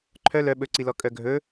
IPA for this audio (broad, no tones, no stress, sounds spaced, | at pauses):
ǃʰ œ l œ ɓ ɵ ǀ i l ɔ kʼ œ ɡʱ ɵ